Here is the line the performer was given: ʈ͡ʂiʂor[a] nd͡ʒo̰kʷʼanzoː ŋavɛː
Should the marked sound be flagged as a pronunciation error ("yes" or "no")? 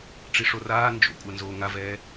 yes